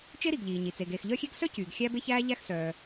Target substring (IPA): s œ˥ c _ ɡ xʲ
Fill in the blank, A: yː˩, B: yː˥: A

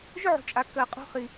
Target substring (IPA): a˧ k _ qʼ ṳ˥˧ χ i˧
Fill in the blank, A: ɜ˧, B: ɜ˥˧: A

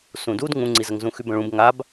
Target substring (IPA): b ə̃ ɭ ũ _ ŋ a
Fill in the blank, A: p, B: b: B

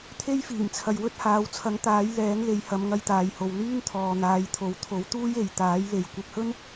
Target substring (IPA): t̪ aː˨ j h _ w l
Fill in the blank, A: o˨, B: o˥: A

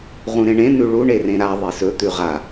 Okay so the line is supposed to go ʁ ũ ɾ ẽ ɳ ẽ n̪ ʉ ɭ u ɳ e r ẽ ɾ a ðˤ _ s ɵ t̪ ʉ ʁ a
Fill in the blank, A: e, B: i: A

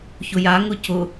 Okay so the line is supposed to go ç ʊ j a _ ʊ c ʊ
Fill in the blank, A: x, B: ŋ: B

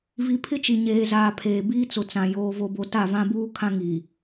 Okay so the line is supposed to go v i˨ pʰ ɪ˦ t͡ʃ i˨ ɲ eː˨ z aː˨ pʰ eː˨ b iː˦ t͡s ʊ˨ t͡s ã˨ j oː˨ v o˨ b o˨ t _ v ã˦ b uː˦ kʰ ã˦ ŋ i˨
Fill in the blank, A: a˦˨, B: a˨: A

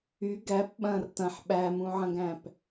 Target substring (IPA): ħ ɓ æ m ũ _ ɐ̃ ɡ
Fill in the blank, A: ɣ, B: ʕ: B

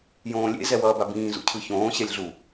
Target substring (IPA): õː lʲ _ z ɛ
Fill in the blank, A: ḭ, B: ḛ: B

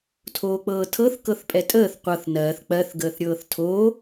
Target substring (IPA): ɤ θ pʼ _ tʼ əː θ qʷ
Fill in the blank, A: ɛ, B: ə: A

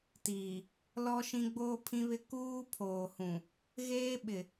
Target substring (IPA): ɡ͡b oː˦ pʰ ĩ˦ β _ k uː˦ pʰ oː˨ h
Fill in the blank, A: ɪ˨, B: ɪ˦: B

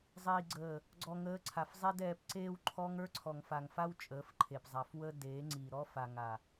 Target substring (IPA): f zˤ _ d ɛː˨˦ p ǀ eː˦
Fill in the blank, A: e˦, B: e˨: A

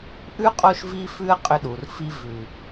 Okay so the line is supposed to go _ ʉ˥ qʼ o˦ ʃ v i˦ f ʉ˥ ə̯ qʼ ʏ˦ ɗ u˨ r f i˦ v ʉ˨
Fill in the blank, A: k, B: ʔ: B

